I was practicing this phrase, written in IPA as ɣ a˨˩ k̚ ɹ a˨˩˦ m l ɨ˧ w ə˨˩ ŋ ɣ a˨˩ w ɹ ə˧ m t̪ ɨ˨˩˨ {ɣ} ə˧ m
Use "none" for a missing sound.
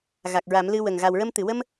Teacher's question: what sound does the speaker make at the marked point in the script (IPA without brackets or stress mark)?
w